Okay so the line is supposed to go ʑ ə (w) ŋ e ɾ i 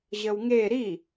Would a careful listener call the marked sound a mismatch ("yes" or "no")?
no